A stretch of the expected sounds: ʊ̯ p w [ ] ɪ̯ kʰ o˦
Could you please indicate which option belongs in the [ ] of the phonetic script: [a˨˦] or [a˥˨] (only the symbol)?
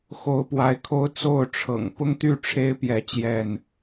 a˨˦